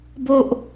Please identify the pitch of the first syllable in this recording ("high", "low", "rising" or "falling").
high